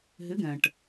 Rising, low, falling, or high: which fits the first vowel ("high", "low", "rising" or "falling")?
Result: rising